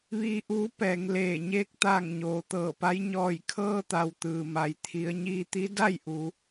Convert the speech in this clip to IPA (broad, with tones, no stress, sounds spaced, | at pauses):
ʋ iː˧˥ ʔ uː˧˥ p ɛː˩˧ ŋ l eː˧˩ ɲ eː˧ k̚ t̪ aː˧˩ ŋ ɲ oː˩ t̪ ɤː˧˩ p a˧˥ j ɲ ɔː˧˩ j kʰ ɤː˧ t̪ a˩ w t̪ ɯː˩ m a˩ j t̪ʰ i˩˧ ə̯ ɲ iː˧ t̪ i˧˥ d a˥˨ j ʔ u˩˧